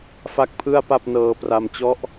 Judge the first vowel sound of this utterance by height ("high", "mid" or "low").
low